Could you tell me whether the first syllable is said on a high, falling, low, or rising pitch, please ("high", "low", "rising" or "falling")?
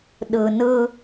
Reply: low